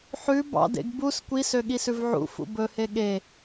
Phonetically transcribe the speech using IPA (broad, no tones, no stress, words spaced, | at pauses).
ħʉ bɑ̰dḛɡ bus kʷi søɠisʉvʕṵ fṵbɵhe ɠe